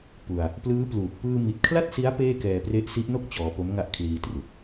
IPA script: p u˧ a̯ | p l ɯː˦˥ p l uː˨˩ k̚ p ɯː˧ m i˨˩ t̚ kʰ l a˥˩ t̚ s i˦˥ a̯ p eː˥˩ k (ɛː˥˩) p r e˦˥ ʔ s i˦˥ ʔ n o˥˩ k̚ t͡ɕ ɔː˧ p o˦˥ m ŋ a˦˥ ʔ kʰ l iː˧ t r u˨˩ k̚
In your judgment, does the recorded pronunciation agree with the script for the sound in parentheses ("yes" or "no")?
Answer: no